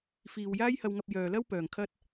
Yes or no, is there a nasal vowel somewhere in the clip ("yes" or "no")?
no